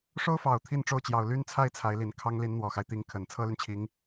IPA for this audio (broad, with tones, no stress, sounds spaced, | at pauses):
ʂ o˥ ʊ̯ f ɑ˨˩ ʊ̯ t̪ʰ i˥˧ n ʈ͡ʂ o˥˩ ʊ̯ t͡ɕ j ɑ˨˩ ʊ̯ l y˥ n t͡sʰ a˥˩ ɪ̯ t͡sʰ a˧˥ ɪ̯ l i˨˩ n kʰ ɑ˥ ŋ l i˧˥ n n̪ w ɔ˨˩ x a˦ ɪ̯ t̪ i˧˥ ŋ kʰ ə˨˩ n t͡sʰ ɤ˥ l y˨ n t͡ɕʰ i˧˥ ŋ